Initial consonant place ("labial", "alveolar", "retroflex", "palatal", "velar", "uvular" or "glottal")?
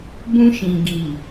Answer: labial